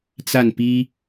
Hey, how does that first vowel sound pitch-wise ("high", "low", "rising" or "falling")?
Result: falling